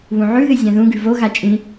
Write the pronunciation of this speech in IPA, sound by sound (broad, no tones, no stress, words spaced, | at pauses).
βũʕʉðɨ zʲãðũɡʉ voɣa t͡ʃʼĩ